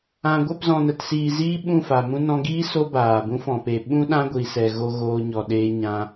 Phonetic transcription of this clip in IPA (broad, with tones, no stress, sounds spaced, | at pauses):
ã˨ ɡʷ ɛ˦˨ p z ɔ̃˨ n ə˨ t s iː˨ z iː˦ ɓ ũ˦˨ f a˨ m ũ˧ n ɔ̃˧ ɡ iː˦ s o˦ b aː˨ b ũ˦ f ɔ̃˨ p e˨ ɓ ũ˦ ɗ ã˦ ɡʷ i˨ s ɛ˨ ɣ o˧ ɣ oː˧ ɲ ɔ˨ ɗ eː˧ ɲ ã˧